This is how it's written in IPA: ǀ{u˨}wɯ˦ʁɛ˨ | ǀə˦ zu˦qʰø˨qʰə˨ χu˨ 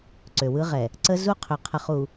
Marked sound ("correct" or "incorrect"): incorrect